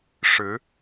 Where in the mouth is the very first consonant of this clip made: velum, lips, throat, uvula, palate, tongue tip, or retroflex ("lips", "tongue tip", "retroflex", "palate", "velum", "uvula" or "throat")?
retroflex